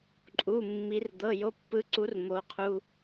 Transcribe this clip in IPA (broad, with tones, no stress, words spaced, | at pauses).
ǃʼu˧˥˧mːi˧˥rd̪ɤ˧˥˧ jo˧˥˧pːɯ˧˥ǀu˧˥r mo˧˥qʰu˧˥˧